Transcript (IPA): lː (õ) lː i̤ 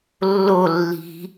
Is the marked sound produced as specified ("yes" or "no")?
no